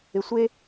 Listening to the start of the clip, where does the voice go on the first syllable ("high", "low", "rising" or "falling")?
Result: low